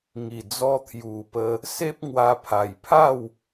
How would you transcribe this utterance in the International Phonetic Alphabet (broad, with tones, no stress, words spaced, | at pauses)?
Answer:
ŋi˨˩d͡zɔ˧t̪ʰju˨˩pə˧ | se˦p̚ŋwa˧ pʰa˨˩jpʰa˥˧w